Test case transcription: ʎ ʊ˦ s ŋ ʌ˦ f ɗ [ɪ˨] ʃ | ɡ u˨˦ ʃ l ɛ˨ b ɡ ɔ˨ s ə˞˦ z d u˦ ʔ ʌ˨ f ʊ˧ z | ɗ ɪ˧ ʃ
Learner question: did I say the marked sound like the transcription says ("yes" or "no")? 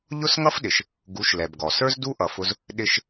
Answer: yes